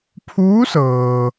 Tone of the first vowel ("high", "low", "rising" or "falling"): rising